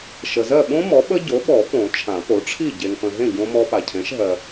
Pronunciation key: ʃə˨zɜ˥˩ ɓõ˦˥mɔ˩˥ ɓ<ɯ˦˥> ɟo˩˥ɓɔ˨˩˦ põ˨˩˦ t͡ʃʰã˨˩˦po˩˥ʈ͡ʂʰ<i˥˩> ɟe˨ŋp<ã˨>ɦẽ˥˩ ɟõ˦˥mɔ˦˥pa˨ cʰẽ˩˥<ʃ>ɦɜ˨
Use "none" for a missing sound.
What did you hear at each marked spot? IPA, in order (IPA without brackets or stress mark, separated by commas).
ə˦˥, i˥˩, ə̃˨, ʃ